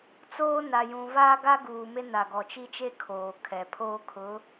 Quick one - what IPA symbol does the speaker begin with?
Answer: t͡s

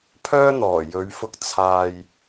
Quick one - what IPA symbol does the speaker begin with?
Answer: pʰ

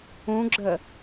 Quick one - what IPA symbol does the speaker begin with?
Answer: ũ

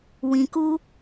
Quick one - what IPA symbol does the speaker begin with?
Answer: w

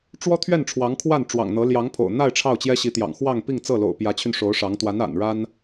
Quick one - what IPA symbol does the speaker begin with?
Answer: ʈ͡ʂ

